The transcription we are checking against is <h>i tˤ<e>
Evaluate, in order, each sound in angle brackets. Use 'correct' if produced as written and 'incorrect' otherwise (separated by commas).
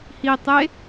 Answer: correct, correct